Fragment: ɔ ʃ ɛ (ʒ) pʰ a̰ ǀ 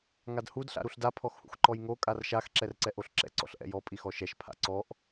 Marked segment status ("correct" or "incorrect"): incorrect